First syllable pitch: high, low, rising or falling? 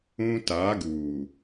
high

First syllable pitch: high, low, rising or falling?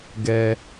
low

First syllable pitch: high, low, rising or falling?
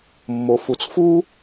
low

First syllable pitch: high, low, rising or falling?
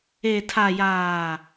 low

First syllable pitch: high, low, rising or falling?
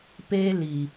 high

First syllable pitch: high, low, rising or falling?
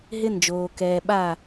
high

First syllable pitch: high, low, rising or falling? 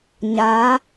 rising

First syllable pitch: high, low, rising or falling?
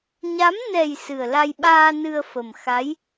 rising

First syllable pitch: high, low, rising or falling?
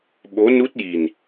rising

